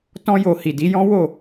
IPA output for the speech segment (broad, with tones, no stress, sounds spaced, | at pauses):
t ɔ̃˧ j o˨ h i˨ d i˨˦ j ɔ̃˦ w o˦˨